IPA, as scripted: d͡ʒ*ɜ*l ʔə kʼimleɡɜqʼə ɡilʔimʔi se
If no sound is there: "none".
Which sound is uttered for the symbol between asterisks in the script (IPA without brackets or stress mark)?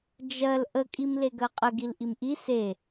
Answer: ɜ